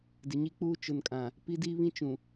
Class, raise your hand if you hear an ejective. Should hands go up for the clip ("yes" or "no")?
yes